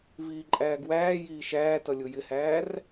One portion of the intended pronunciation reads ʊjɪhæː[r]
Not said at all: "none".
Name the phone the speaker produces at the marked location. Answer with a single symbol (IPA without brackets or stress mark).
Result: r